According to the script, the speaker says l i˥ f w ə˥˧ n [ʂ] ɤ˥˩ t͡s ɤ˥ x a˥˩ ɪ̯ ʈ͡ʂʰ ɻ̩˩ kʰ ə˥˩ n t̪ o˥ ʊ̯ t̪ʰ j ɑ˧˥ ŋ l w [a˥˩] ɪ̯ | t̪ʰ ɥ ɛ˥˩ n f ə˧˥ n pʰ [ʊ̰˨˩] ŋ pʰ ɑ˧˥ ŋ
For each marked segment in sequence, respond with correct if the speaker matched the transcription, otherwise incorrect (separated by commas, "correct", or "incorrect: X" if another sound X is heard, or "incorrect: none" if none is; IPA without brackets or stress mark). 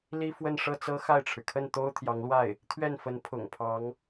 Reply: correct, correct, correct